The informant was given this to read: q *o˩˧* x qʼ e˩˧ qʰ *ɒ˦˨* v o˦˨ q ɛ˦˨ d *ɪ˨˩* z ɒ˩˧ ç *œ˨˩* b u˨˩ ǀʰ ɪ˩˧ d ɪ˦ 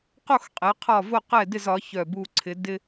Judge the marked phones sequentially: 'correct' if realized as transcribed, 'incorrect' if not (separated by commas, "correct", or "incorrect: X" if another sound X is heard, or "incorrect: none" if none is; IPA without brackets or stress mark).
incorrect: o˦˨, correct, incorrect: ɪ˦˨, correct